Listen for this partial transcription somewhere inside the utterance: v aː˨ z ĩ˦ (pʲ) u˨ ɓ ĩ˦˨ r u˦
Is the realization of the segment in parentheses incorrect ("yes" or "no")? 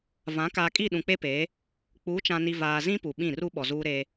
yes